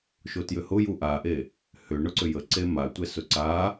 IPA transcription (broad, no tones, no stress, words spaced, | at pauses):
ʃotjʏhʊju ʔaʔe | hʏɳʊǀʏ jə ǀematʷɛ sʊǀa